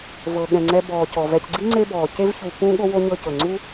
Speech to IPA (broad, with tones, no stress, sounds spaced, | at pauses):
v ɤ˩ ɠ ɛ̃˩ ŋ͡ǀ ɛ˨ b ɔː˩ c ɔ˩ v ɛ˨ c ɡ͡ǀ i˥ ŋ͡ǀ e˦ b ɔː˩ c e˦ v ç u˨ p ũ˥ ɠ o˥ w o˥ ɲ ɤ˦ c ɤ˩ ŋ͡ǀ u˥